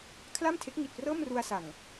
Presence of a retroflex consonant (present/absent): absent